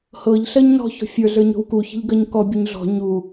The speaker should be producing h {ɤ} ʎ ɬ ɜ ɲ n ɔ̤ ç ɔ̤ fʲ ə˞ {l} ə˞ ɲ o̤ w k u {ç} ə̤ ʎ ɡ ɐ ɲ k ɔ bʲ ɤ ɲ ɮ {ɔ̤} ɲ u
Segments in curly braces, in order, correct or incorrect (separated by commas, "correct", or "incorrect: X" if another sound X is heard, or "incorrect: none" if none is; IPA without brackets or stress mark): correct, incorrect: ɮ, correct, correct